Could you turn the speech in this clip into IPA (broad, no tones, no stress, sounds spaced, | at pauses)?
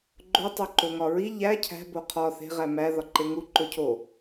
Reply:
ɡ͡ǃ o tˤ o ǃ o ŋ ɒ ɹ i ʎ æ cʰ æ̤ b o qʰ ɒ θ e̤ ʁ æ m æ ð ɒ ǃ e ŋ u ǃ o cʰ o